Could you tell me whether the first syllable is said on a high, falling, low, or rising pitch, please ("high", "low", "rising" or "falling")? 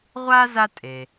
high